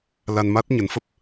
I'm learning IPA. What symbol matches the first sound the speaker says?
l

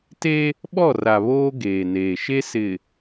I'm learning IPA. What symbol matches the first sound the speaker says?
t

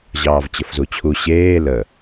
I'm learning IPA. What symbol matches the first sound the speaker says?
ʑ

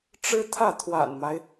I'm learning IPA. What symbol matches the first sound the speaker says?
ʈ͡ʂ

